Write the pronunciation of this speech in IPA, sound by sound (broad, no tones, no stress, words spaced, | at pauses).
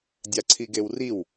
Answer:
dʲaǀʰiɡewriw